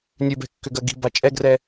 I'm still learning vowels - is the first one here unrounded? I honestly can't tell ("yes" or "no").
no